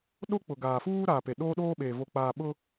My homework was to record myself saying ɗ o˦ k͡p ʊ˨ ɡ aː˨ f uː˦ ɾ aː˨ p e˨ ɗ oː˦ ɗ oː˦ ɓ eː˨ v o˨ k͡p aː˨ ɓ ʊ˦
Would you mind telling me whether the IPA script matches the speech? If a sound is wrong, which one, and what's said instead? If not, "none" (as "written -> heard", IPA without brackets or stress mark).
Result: none